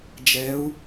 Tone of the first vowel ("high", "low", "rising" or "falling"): rising